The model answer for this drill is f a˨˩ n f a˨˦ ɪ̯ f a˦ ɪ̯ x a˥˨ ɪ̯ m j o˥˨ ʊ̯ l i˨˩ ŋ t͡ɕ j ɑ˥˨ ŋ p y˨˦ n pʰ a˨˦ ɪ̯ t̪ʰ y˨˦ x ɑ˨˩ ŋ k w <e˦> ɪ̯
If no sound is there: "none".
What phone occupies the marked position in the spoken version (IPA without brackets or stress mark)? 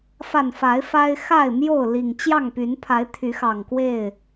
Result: e˥˨